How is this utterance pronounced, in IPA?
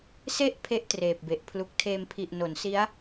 s e˦˥ ʔ pʰ e˥˩ ʔ t r eː˨˩ p̚ b e˨˩ ʔ pʰ l u˨˩ k̚ tʰ eː˧ m pʰ i˨˩ ʔ n o˩˦ n s i˦˥ a̯

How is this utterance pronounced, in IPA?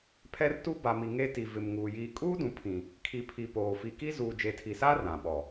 pʰ ɛ˦ r t u˦ b a˨ m i˨ ŋ e˦ t i˨ v ɪ˨ m ŋ uː˨ j iː˨ kʼ uː˦ d ũ˨ pʰ ĩ˨ | kʰ i˨ pʰ i˨ p oː˨ f i˨ k i˦ z uː˨ d͡ʒ e˨ tʰ i˨ s aː˦ r ã˨ ɓ ɔ˨

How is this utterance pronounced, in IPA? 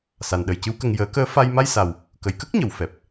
s a˨˩ n ɗ ə˨˩ j c ɨ˧˥ w k ə˧ ŋ j əː˨˩˦ k əː˧˥ f a˧ j m a˧ j s a˨˩ w | k ə˨˩˨ j k ə˦˥ k̚ ɲ ə˨˩˨ w f ɛ˨˩ p̚

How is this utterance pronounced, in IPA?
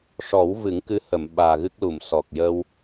ʂ ɔ˨˩˦ w v ɨ˨˩˦ ŋ k ɨ˧˥ h ə˨˩˨ m ɓ aː˨˩ ɣ ɨ˦˥ k̚ l u˨˩˨ m s ɔ˨˩ k̚ j əː˧ w

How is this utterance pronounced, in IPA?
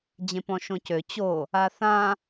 d͡ʑ ẽ p ɔ̃ ʃ õ c ø t͡ɕ o | a θ ã

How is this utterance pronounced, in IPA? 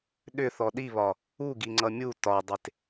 ɗ ʏ θ ɔ ɗ i β ɒ | u ɡ i ŋ͡ǀ ʌ mʲ u t ɒ dˤ e t

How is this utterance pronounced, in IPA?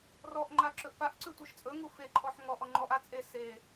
r ɔ ʔ ŋ͡ǃ a ǁ ɵ ʔ p a ʔ ǀ ʉ tʷ e ʃ t͡sʼ ɵ ŋ u f e ǃʰ ɔ ħ ŋ ɔ ʔ ɔ ŋ͡ǃ ɔ ʔ a t͡sʼ e s e

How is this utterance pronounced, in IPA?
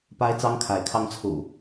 p a˦ ɪ̯ t͡s ɑ˦ ŋ kʰ a˨˦ ɪ̯ kʰ ɑ˦ ŋ t͡sʰ ṵ˨˩

